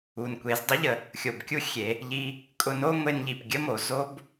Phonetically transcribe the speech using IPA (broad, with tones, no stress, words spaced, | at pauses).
u˩nkʷe˩˧zdˤʊ˧˥ʎə˩ | xʲo˩b kʲu˥ xʲe˩˧ | ʎi˧ | kʼʊ˧no˥ ŋʷe˧nʎi˩p ɡʲə˥mo˩ zo˥b